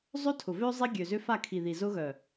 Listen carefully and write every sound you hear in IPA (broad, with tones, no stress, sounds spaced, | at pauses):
zˤ ø˦ tʰ ʊ˨ v ø˦ zˤ i˦ ɡʲ ø˨ z ʏ˦ f a˦˨ kʰ i˨ ð i˨ z ʊ˦ ɣ œ˨